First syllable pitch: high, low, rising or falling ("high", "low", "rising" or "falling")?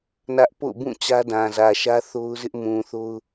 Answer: high